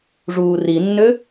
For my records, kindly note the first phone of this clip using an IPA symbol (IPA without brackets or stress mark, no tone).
ʐ